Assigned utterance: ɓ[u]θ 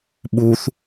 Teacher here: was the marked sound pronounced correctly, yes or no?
yes